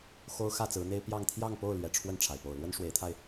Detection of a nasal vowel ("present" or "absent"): absent